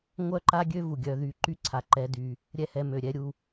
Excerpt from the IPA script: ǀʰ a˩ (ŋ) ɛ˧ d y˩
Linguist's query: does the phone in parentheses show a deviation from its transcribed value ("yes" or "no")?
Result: yes